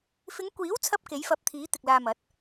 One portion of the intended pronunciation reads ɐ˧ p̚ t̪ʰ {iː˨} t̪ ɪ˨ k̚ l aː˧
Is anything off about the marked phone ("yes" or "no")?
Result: yes